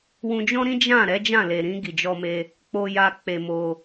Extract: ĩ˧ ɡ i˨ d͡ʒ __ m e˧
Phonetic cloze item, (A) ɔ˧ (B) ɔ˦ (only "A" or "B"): A